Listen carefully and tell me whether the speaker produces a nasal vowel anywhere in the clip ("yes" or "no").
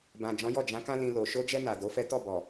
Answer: yes